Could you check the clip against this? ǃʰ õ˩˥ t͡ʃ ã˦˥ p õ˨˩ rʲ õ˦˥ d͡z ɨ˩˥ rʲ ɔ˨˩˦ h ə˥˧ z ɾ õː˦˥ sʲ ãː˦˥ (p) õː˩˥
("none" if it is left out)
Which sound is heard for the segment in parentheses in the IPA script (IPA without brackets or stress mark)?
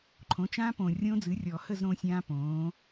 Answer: p